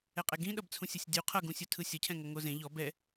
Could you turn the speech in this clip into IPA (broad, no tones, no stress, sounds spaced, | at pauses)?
ɛ qʼ ɛ ɡ ĩ ɗ ʌ b t͡sʰ ũ sʲ ɤ sʲ dʲ u qʰ ʌ ɡ ũ sʲ u tʰ ɯ sʲ ʌ cʰ ɛ̃ ŋ ʌ ŋ o z ẽ ʎ ɔ b ɛ